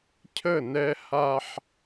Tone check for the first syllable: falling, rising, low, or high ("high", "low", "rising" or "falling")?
falling